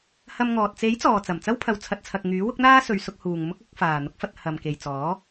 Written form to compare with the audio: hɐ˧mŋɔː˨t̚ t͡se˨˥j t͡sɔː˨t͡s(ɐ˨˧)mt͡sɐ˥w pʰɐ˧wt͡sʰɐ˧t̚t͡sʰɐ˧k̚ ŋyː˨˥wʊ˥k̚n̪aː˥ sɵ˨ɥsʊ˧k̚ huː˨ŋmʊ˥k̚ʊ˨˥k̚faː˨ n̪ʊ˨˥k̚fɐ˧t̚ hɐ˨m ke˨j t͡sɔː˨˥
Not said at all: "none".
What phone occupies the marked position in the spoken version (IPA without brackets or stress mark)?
ɐ˨˩